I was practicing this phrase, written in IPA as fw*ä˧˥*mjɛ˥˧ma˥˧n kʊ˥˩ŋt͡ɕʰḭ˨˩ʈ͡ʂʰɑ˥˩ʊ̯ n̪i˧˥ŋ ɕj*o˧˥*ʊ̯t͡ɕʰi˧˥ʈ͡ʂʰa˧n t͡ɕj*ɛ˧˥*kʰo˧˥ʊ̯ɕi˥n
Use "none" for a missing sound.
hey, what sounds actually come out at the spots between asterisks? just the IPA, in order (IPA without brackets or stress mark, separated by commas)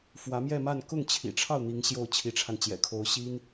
ä˧˥, o˥˩, ɛ̰˨˩